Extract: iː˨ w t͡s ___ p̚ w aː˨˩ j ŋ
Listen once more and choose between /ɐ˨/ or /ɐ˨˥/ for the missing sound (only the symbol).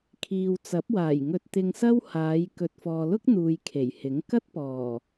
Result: ɐ˨˥